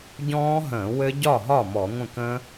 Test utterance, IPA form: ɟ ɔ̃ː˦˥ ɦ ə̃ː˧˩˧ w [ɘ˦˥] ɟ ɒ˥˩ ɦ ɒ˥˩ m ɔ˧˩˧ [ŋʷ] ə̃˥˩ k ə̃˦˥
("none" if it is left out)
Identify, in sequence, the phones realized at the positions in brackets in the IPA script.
ɘ˦˥, ŋʷ

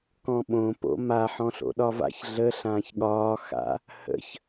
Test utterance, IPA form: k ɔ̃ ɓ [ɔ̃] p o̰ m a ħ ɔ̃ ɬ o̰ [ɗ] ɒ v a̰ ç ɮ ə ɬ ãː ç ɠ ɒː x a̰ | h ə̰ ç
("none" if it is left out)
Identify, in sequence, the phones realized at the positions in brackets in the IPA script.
õ, ɗ

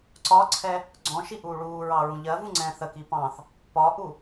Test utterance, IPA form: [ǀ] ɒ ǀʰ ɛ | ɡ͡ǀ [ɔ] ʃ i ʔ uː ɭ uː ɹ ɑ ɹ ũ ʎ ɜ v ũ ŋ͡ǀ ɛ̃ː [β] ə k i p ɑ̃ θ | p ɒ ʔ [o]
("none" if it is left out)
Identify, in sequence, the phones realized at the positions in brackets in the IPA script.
ǀ, ɔ̃, θ, u

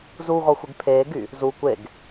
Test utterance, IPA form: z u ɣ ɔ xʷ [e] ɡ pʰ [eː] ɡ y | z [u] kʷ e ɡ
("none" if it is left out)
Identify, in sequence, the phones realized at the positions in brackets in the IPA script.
e, eː, u

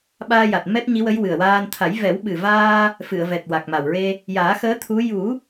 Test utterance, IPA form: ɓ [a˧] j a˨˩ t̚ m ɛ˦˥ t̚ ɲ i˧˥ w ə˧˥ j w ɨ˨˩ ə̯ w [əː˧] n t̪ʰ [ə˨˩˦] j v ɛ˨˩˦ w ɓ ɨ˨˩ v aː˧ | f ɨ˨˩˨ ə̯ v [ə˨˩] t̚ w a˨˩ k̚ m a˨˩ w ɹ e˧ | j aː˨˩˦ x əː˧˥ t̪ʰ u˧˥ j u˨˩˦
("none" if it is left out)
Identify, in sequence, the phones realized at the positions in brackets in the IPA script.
aː˧, aː˧, a˨˩˦, ɛ˨˩

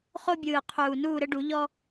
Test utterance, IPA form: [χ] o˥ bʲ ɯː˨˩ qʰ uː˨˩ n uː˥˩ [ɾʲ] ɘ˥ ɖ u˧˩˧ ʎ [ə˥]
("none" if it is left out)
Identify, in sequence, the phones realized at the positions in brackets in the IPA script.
χ, ɾ, ɔ˥

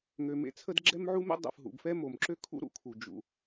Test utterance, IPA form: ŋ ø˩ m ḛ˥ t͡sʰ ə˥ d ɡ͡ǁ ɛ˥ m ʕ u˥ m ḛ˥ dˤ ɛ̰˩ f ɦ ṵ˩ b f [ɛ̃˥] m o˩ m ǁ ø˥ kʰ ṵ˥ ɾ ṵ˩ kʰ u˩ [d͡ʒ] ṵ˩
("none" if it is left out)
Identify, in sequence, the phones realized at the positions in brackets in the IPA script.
ɛ˥, d͡ʒ

